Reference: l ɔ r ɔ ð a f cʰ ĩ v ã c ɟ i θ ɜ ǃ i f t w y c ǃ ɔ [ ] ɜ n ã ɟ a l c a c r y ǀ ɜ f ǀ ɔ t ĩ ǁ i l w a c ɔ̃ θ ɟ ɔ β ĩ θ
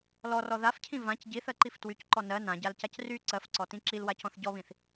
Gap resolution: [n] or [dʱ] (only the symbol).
n